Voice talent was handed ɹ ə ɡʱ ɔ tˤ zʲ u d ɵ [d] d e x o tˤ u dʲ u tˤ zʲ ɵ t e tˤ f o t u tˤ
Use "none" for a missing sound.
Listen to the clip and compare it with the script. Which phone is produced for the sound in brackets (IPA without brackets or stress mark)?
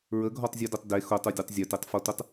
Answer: tˤ